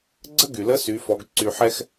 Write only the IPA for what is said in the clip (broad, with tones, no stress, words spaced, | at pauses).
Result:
ɡ͡ǀə˥ɡy˩lə˧˥ sy˩˧fɔ˩˧ɡ ǀy˩ħɛ˧x